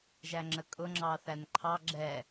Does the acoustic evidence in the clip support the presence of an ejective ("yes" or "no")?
yes